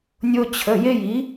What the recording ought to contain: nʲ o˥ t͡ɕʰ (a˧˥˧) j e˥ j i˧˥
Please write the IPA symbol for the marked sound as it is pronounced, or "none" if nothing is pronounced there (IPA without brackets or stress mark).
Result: ə˧˥˧